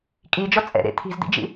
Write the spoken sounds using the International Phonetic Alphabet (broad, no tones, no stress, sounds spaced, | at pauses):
kʼ i d͡ʒ ɔ t͡sʼ ɛ̰ ɾ ḛ t̪ʰ i̤ z d̪ ḭ d͡ʒ ḭ